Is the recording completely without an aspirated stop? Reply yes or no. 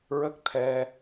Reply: no